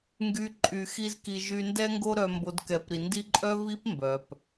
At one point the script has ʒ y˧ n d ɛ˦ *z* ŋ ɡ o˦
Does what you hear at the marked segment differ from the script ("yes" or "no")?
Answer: yes